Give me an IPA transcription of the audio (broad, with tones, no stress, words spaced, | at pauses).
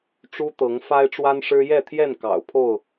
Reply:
ʈ͡ʂu˦t̪ɤ˨˦ŋ fa˦ɪ̯ʈ͡ʂwa˦nʂɻ̩˦ jɛ˥˨t̪ʰjɛ˥˨n kɑ̰˨˩ʊ̯pʰo˥˨ʊ̯